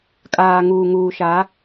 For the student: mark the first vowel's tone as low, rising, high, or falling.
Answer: low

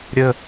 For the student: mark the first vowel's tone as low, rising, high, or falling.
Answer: low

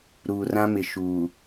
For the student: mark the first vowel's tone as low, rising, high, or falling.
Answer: low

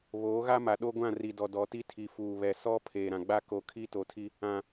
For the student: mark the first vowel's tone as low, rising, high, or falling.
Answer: rising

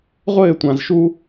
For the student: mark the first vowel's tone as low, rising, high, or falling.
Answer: falling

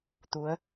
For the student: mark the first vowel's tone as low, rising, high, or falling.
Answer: rising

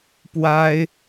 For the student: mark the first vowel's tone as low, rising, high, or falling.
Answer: high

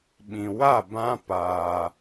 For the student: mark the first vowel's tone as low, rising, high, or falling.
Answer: low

